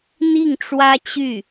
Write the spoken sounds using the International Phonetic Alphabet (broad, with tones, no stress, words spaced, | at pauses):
n̪i˥˩ŋʈ͡ʂwä˥t͡ɕy˥˩